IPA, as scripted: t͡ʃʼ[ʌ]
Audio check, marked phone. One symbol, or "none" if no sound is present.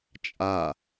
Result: a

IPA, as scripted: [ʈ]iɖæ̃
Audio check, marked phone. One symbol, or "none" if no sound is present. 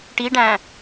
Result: ʈ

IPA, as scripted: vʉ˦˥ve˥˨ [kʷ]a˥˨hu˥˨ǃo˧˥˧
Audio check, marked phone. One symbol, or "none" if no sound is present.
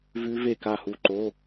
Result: k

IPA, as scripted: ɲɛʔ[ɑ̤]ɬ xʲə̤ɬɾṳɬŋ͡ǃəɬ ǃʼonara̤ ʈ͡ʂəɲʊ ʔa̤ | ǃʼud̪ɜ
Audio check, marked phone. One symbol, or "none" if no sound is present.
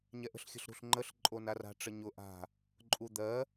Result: ə̤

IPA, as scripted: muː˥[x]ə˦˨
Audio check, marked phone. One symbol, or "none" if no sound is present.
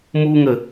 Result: ŋ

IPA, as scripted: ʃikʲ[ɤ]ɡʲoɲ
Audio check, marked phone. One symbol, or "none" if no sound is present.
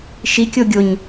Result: o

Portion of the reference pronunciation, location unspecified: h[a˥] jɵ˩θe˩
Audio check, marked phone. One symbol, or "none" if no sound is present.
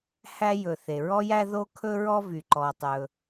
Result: æ˥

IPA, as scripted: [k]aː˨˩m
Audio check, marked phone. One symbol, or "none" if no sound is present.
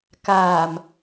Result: k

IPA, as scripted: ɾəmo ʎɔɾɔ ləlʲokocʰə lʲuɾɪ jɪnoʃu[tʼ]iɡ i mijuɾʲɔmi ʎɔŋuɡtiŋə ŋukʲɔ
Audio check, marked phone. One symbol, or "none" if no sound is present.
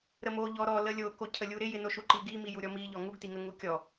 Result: ǃ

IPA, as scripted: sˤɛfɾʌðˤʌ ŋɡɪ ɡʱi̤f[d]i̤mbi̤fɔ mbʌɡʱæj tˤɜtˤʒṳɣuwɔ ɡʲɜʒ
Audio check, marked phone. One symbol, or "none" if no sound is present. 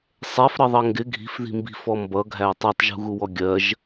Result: ð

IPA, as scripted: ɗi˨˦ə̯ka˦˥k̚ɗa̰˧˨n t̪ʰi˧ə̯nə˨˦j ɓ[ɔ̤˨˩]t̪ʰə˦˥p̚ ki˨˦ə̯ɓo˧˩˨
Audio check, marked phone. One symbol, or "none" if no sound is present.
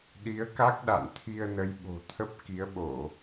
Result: o̤˨˩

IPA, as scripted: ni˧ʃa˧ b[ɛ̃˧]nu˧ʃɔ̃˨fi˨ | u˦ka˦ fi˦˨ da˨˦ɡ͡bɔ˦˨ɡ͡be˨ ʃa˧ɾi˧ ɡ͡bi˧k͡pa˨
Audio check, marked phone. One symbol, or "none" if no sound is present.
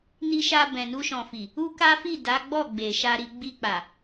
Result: ɛ̃˨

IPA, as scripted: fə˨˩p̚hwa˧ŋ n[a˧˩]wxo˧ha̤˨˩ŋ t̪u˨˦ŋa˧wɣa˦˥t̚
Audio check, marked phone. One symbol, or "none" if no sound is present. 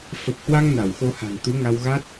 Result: a˧˩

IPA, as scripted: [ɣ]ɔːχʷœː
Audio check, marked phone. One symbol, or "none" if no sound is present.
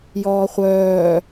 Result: j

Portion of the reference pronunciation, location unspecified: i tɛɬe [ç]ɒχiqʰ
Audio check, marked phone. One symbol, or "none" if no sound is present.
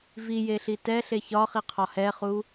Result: ç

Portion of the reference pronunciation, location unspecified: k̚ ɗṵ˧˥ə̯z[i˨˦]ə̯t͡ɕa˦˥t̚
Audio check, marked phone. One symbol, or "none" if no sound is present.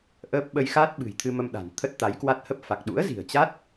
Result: i̤˨˩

